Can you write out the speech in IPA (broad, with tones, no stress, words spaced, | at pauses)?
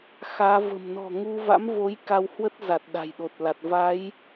xaː˨˦və̤˨˩m nɔ̤˨˩ ŋu˧va̰˧˥mvo˨˦j ka˧whwə˦˥t̚za˨˩t̚ ɗa̤˨˩jɗo˨˩t̚la˨˩t̚ va˨˦j